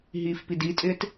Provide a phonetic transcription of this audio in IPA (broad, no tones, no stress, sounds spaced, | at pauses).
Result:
ɦ iː f p i d i tʼ ɪː t